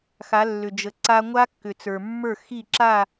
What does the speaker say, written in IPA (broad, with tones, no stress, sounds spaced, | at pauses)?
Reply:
x a˨˦ lː ʏ˨ d͡ʒ ə˨ ǀ a˦ ŋʷ a˦ kː ʏ˨ t͡s ə˞˨ mː ə˞˦˨ x i˦˨ ǁ a˦˨